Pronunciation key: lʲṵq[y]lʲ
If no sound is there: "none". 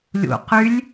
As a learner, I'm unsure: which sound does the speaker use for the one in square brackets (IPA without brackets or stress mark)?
y